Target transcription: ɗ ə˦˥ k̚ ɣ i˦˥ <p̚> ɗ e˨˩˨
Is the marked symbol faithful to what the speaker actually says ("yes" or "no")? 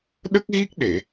no